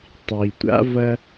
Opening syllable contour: low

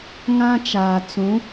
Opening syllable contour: high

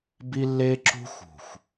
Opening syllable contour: high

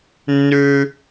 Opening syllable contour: high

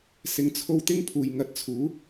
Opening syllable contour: low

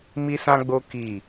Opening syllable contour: high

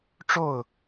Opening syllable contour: falling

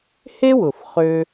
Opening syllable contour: high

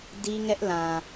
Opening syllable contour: high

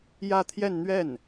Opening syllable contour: falling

